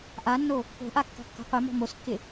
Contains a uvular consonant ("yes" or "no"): yes